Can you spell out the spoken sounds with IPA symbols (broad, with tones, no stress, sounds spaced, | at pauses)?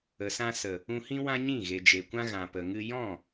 ə˨ s ã˧ s ə˨ | ũ˧ h ĩ˦ w ã˦ ɲ ĩ˦˨ ɣ e˨ d͡ʒ e˨ kʷ ã˦ ɣ ã˨ p ə˨ ŋ ɨ˧ j ɔ̃˦˨